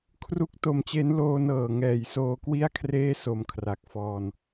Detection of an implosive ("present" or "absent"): absent